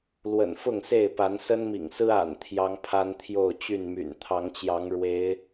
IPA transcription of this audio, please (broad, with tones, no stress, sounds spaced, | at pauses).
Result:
l w ə̰˨˩ n f ʊ˥˨ ŋ s e˥˨ ɪ̯ p a˨˦ n s ə˦ n m ḭ˨˩ ŋ s ɹ̩˦ a̰˨˩ n t̪ʰ j ɑ˦ ŋ pʰ a˦ n t̪ʰ j o˥˨ ʊ̯ t͡ɕ y˥˨ n m y̰˨˩ n t̪ʰ ɑ˨˦ ŋ t͡ɕ j ɑ˨˦ ŋ ɻ w e˨˦ ɪ̯